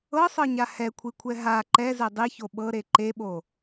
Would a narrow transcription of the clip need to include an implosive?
yes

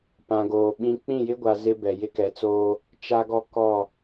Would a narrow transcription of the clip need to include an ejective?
no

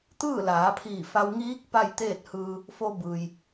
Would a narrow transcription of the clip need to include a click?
no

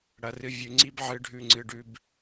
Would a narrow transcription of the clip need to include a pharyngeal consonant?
yes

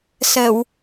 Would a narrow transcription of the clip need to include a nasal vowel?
no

